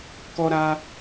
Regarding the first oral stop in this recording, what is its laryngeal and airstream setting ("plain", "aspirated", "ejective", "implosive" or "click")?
plain